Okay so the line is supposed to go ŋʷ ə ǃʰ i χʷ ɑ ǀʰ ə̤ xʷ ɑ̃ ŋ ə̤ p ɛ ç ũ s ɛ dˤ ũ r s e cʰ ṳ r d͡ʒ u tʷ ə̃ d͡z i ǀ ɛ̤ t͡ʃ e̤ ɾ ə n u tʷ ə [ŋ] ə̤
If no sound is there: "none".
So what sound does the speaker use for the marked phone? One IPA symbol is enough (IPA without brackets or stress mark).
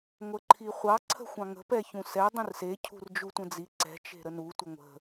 ŋʷ